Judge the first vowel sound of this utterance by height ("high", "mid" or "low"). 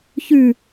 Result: high